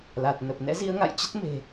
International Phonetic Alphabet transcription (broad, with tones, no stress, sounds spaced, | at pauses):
l a˨˩ t̚ n ə˨˩ p̚ n ɛ̰˧˥ z i˧ ə̯ ŋ a̰˧˨ j t͡ɕ ə˦˥ t̚ m e̤˨˩